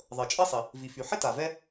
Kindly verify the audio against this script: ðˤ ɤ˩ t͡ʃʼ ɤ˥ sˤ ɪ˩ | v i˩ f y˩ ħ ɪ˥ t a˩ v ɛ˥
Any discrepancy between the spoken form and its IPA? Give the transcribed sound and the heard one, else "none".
none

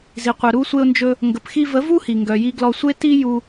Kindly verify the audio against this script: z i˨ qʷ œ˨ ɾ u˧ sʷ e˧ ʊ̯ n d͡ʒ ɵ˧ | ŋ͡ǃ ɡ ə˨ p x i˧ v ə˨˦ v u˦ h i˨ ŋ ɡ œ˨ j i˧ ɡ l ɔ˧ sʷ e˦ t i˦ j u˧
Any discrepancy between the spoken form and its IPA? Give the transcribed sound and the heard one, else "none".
ŋ͡ǃ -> ŋ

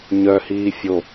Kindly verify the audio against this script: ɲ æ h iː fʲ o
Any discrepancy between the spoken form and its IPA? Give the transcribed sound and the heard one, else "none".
æ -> œ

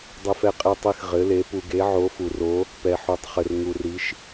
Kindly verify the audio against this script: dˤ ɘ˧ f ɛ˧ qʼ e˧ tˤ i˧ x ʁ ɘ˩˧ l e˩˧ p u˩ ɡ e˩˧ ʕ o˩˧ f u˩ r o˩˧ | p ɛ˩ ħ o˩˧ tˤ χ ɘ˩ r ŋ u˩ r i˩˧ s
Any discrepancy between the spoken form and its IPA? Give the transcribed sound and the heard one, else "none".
s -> ʃ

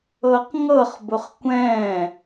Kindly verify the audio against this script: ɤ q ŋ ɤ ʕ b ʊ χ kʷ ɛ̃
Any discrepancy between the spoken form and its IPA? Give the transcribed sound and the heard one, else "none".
ʕ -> χ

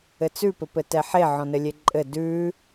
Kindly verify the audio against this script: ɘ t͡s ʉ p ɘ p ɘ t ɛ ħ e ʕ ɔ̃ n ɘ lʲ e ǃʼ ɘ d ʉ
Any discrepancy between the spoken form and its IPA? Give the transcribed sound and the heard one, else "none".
none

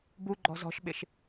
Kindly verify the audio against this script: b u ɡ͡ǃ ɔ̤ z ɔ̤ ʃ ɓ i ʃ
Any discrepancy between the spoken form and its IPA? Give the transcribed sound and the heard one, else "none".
i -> ɪ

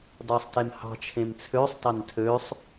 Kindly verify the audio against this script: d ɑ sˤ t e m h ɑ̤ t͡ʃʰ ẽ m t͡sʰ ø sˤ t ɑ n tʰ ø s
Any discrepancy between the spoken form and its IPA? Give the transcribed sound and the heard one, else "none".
s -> sˤ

